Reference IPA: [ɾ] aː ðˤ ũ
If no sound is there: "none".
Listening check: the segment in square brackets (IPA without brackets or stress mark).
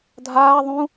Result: dʱ